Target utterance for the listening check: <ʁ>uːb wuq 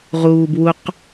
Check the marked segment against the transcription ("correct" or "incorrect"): correct